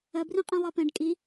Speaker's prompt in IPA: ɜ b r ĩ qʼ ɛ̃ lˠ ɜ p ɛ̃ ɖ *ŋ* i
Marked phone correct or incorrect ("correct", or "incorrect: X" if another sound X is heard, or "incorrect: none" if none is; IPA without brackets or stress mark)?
incorrect: kʼ